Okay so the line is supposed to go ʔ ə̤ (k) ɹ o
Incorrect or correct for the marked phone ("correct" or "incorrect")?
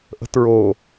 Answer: incorrect